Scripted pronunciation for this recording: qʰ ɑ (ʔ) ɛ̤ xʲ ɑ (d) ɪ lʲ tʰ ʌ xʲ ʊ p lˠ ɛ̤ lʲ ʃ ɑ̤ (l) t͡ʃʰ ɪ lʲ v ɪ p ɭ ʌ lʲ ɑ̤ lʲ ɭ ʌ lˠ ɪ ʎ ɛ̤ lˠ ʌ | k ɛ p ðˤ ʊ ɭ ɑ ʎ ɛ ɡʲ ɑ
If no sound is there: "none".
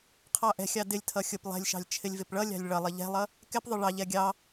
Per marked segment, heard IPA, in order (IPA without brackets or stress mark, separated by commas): ʔ, d, lʲ